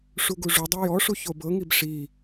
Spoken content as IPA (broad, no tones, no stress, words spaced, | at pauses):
ʂuɡuʐudˤi jɔʂu çobɤŋib ʂi